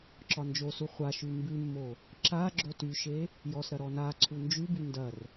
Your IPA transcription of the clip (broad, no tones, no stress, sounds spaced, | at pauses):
ǁ ɒ n d͡ʒ o s u χʷ a ʃ ʉ m b ʉ mː o | ǁ a ɡ͡ǁ o t y ʃ e | j ɔ s ɾ ɐ ɾ ɔ n a ǀʰ u n d͡ʒ ʉ b y n d ɐ r